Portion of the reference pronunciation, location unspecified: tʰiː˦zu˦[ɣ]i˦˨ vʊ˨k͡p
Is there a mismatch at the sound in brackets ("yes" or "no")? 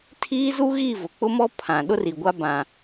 no